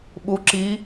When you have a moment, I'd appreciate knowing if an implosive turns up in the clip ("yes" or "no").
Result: yes